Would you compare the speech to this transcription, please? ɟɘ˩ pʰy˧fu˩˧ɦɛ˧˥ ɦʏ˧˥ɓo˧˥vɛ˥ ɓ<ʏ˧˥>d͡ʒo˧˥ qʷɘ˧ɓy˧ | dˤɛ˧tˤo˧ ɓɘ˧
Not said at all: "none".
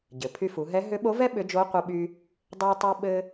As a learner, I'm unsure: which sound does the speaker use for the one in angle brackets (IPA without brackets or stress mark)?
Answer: ʏ˧˥